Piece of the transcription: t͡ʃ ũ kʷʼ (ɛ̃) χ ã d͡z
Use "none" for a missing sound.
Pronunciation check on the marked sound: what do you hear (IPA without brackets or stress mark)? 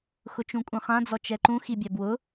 ɛ̃